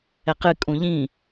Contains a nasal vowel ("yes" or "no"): yes